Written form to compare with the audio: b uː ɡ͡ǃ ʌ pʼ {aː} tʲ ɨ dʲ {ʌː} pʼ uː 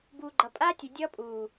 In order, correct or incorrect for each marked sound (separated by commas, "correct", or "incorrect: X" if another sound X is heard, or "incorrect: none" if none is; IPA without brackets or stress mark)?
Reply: correct, correct